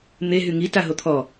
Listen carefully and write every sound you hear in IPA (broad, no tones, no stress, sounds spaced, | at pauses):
n̪ e ɦ y ŋ i t a ɦ o t̪ʰ ɔ